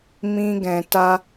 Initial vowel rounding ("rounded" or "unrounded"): unrounded